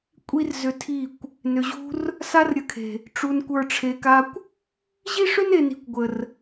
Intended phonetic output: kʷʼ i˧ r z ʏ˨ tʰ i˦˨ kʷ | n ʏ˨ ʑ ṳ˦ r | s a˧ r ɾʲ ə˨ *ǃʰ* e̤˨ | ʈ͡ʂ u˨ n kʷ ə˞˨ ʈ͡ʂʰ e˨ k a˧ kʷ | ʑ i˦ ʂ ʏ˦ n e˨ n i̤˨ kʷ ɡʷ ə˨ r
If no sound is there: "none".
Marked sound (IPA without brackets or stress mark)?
kʰ